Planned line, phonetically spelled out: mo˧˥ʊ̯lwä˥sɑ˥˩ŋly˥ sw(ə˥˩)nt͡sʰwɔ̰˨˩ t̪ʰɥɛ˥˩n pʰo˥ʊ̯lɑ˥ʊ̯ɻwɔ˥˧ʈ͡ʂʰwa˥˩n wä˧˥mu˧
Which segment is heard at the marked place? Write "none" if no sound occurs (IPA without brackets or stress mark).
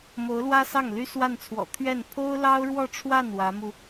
a˥˩